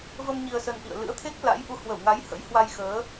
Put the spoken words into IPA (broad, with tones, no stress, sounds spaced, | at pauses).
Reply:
v ə˧ m ɲ i˧ ə̯ s ə˧ n ʔ ḭ˧˨ ə̯ l ɨ̰˧˥ ə̯ t̪ʰ e˦˥ k̚ l a̰˧˥ j ʔ u˨˦ h w ə˧˩ w ŋ a˨˦ j h ə̰˧˥ j h w a˧ j x əː˨˦